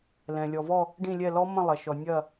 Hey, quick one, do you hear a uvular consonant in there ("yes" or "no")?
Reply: no